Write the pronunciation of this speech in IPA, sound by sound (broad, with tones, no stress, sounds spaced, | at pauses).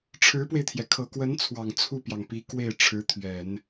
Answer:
ʈ͡ʂʰ ɻ̩˧˥ p w e˧ ɪ̯ t̪ʰ j ɛ˩ kʰ ɤ˨˩ k w ə˧˥ n t͡sʰ w ɑ˨˩ ŋ t͡sʰ u˥˩ p j ɑ˩ ŋ p i˧˥ k w e˥˩ ɪ̯ ʈ͡ʂʰ ɻ̩˧˥ t̪ʰ ɥ ɛ˨˩˦ n